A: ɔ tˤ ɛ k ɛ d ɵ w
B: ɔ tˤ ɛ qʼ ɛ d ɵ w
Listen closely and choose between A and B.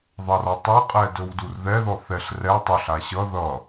B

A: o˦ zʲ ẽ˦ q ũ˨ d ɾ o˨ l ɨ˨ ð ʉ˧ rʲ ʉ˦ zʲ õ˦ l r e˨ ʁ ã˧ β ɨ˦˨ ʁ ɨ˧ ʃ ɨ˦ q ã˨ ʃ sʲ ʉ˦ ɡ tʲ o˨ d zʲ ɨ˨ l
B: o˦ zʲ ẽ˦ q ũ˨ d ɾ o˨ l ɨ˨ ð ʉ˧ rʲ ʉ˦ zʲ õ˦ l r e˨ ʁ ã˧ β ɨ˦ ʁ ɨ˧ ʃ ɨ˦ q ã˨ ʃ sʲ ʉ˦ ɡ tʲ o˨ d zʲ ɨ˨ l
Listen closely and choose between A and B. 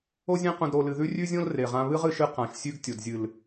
B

